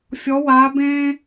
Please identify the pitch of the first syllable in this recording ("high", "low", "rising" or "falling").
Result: rising